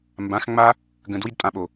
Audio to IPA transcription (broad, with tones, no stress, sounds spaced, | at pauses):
m b ã˨˦ x ŋ͡m a˦ | ɡ ə̃˨ d w i˦ d tʼ ã˧ ɓ o˨